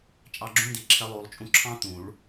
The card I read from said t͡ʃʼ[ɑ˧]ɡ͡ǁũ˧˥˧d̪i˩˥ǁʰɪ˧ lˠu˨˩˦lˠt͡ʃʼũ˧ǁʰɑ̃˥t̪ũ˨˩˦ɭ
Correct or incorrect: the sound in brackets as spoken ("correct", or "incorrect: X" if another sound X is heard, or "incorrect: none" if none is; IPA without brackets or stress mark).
correct